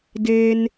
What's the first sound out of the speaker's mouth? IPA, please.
d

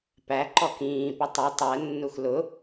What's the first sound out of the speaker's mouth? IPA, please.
p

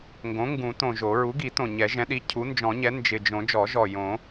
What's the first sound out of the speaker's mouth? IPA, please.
ŋ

